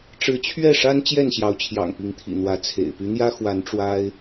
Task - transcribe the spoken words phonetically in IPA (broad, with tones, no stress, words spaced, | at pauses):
ʈ͡ʂɻ̩˨˦t͡ɕʰɥɛ˥˨ʂa˦n t͡ɕjɛ˥˨nɕjɑ˨˦ʊ̯t͡ɕʰjɑ̰˨˩ŋ pi˨˦ŋt̪ʰḭ˨˩n̪wä˨˦ t͡sʰḛ˨˩ɪ̯ py˨˦n̪jä˦ xwa˨˦n ʈ͡ʂwa˦ɪ̯